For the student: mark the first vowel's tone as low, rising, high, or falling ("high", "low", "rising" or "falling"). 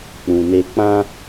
low